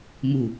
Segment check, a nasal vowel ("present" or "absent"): absent